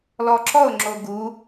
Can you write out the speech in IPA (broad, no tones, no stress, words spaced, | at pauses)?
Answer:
lɔǁɔʊ̯ŋ͡ǁo ɡu